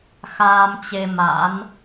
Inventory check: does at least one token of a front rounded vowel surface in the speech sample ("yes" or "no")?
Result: no